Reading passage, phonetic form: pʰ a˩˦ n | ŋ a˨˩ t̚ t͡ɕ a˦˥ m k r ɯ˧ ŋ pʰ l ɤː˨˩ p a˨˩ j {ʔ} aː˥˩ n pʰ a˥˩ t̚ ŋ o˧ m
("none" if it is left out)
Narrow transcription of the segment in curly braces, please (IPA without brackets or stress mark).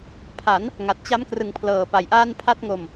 ʔ